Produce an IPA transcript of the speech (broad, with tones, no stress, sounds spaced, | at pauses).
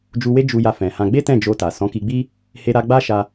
d͡ʒ u˧ w e˦ d͡ʒ u˧ j a˧ f ɛ̃˨ h ã˧ ɡ͡b e˦ t ɛ̃˦˨ d͡ʒ o˧ t a˨ s ɔ̃˨˦ k i˧ ɡ͡b i˦ | h e˧ ɾ a˧ ɡ͡b a˦ ʃ a˧